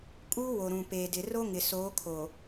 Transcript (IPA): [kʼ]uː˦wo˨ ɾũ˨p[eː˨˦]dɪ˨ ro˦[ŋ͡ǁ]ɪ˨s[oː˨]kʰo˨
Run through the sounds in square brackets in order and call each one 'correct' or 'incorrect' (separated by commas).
correct, incorrect, incorrect, incorrect